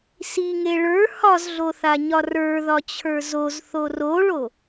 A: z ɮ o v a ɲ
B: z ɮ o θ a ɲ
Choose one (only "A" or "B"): B